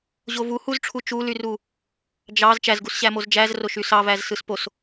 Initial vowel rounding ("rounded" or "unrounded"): rounded